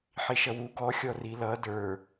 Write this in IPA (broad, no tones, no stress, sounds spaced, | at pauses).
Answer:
ħ i ʃ ʌ w u ɡ ɔ xʲ ɔ r i l ʌ d ə˞